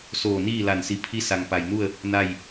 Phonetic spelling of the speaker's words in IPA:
soː˧˩niː˥˨ la˧˩nsi˧˩ pʰi˧˥sa˩ŋ pa˩jnu˥˨ə̯ | na˥˨j

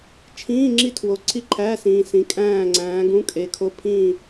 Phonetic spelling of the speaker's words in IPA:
t͡ʃʰĩː˧˥˧ ŋ͡ǁi˥˨tʰwo˨˦ ǀʰi˥˨ǃʰæ˧˥˧sĩː˨ sĩ˨kʼæ̃ː˥˨ ŋ͡ǀæ̃ː˨˦ɡũ˧˥˧kʼe˨˦ kʰo˧˥˧pʰĩː˥˨

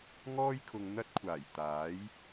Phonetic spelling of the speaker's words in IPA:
ŋɔː˥jkʰʊ˨ŋ n̪ɐ˥t̚kʷʰaː˨˩j t̪aː˨˥j

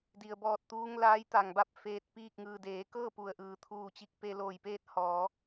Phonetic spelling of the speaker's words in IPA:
di˩ə̯bɔː˧˩t̚t̪uː˧ŋ laː˧˥jt̪a˩ŋba˥˨p̚ feː˧t̚piː˥˨k̚ ŋɯː˩deː˩˧kɤː˥˨ pu˩ə̯ʔɯː˩t̪ʰuː˧˩t͡ɕi˧k̚ pe˧loː˧˩jpeː˥˨t̚ hɔː˩˧

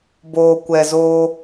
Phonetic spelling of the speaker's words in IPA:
boː˨kʷɛ˨zoː˧

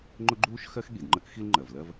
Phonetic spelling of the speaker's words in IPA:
ŋ͡ǃʊ˥ɡ͡ǃuː˥ʃxɜ˥x ɠi˩dŋ͡ǃə˥k xi˥lŋ͡ǃɜ˩vlɜ˥v

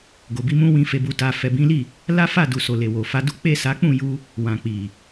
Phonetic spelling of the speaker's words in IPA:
ɡo˨bi˧mũ˧ wĩ˨fe˨bu˨ta˨ fɛ˨bĩ˨˦li˦˨ | la˦fa˦˨du˨so˨ le˨wo˨fa˧du˦ k͡pe˦˨sa˨˦k͡pũ˦˨ ju˧ | wã˨k͡pi˨

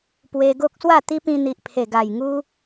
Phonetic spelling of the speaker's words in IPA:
pwe˧ ɡo˦k̚swa˥˧t̪i˦pĩ˧ n̪i˨ʔpʰe˨˩ɡa˨˩jŋu˦

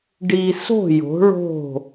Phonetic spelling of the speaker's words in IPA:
ɖi˨ so̤˦˨jo̤˨˦ɭo̤˦˨

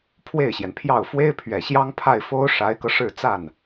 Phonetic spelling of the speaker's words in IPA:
pʰwe˥˩ɪ̯ɕjɛ˩npʰjɑ˥˩ʊ̯ fwe˥ɪ̯pʰɥɛ˨˩ɕjɑ˥ŋ pʰa˥˩ɪ̯fo˥ʊ̯ ʂa˧˥ɪ̯kɤ˧ʂɻ̩˥˧ t͡sa˥˩n

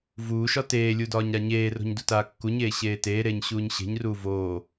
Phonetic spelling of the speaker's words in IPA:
vuːʃɒ teːlʲudɒːɲ ɾaɲeːro̤ɲ dutaːkːuɲeː ɕeːteːɾeːɲ ɕuːɲɕe̤ɲruː voː

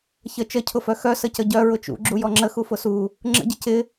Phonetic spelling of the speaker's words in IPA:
çə t͡ʃəcʰʊfœ xœ səcəɟœ ɹʊt͡ʃṵ ɡ͡ǁujɔŋ͡ǁə xufʊsu | ŋ͡ǁə̰ɟə cɪ

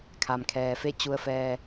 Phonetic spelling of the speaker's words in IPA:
kʰa˩mkʰɛː˩fe˥˨ t͡ɕu˧ə̯fɛː˧

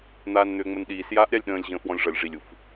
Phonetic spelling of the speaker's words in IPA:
n̪aːnn̪ʏːŋ͡mənɗiːs jaːʔɾʲalʲɗə̃ːlʲ ʑə̃ːfwɔ̃lʲʐʌlʲ ʐilʲ uf

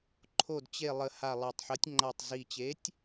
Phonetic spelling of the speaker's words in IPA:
ǃʰo˨˩d t͡ɕe˨˩ lˠə˨˩ha˨˩lˠa˨˩tˤħə˨˦tʲ ŋ͡ǃa˨˩tˤzi˨˩ t͡ɕe˨˦tʲ

